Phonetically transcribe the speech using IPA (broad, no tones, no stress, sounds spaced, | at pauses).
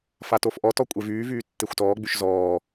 f a t o f ʔ ɔ t ɔ kʷʼ e v yː v yː tː e xʷ t ɔː ɡ͡b y ʃ z ɔː